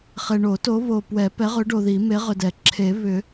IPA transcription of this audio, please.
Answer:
χ e˨ ɳ o˨˩˦ t o˨˥ β o˨ p w ɛ˨˩˦ p ɛ˨˥ ʁ ʏ˨˥ ɖ o˨ ð i˨˩˦ m e˨˥ ʁ ʏ˨ d ɛ˨˩˦ ǁʰ e˨˩˦ β ʏ˨˩˦

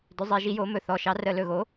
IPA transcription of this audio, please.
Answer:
d ʏ˧˥ zˤ e˧˥ ʒ i˧˥ j o˧˥ m ɵ˦˨ θ ɔ˧˥ ʃ ɑ˧˥ r ə˦˨ l ɵ˦˨ ɣ o˧˥

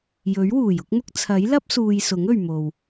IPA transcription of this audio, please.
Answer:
j ɵ˨˥ ɥ w uː˨˩ j ʊ˥ k̚ m ʊ˥ k̚ t͡sʰ ɐ˨˥ j l ɐ˥ p̚ s uː˨ j s ʊ˨˥ ŋ ɵ˨ ɥ m o˨ w

